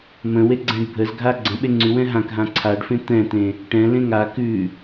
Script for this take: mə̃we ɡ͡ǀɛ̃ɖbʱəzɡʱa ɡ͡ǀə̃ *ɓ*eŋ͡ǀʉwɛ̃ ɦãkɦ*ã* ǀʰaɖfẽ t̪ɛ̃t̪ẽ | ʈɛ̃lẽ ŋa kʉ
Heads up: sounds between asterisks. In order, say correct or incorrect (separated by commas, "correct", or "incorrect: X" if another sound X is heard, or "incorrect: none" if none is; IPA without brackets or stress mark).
correct, correct